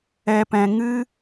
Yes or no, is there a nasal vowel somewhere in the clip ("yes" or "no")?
yes